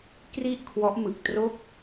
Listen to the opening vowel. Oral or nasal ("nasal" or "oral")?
oral